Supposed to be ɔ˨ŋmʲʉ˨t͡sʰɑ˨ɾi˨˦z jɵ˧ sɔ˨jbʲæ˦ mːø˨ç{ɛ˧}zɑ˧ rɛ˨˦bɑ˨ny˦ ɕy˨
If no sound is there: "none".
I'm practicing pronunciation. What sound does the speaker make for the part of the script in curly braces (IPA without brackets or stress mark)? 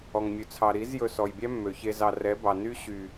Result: e˧